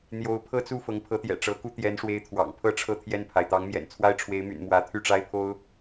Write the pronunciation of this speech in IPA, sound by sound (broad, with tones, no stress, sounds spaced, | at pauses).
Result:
n̪ j o˧˥ ʊ̯ pʰ ɤ˥˧ t͡s u˥˩ f ɤ˧˥ ŋ pʰ ɤ˧˥ t̪ j ɛ̰˨˩ ʈ͡ʂ ɤ˧˥ k u˥ t̪ j ɛ˧˥ n ʂ w e˧˥ ɪ̯ t̪ʰ w ɑ̰˨˩ ŋ pʰ ɤ˥ ʈ͡ʂʰ ɤ˥˧ t̪ʰ j ɛ˥˩ n pʰ a˩ ɪ̯ t̪ ɑ˧˥ ŋ m j ɛ̰˨˩ n t͡sʰ w a˥ ɪ̯ ʈ͡ʂʰ w e˧˥ ɪ̯ m y̰˨˩ n m w ä˧˥ t̪ʰ y˥˩ ʈ͡ʂ a˥ ɪ̯ pʰ o˥ ʊ̯